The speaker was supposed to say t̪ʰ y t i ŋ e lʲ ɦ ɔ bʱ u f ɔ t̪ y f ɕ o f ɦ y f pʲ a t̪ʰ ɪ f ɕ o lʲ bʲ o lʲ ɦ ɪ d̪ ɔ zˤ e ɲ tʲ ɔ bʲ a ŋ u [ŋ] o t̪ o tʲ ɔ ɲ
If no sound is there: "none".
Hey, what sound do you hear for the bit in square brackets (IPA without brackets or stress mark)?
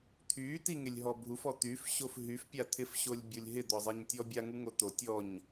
ŋ